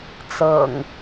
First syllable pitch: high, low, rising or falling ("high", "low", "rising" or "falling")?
low